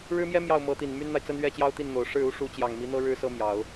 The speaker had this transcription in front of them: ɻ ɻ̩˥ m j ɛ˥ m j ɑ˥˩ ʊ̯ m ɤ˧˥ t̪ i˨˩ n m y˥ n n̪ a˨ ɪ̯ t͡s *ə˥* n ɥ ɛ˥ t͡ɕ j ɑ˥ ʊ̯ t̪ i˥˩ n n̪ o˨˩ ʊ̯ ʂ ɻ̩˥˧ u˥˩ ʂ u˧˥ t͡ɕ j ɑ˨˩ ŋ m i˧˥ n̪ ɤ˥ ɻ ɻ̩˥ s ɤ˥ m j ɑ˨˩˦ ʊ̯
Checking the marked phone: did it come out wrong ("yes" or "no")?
no